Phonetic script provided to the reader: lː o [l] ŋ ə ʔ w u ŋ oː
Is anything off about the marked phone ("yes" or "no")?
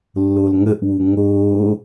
no